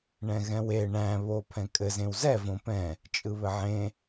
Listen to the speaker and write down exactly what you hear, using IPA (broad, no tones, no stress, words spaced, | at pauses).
ɳɛ̃ɣɛ̃we ɳæ̃ βopʰɛ̃kʼɘ zẽwzɛ võpɛ̃ | t͡ʃʼɯβɘʕẽ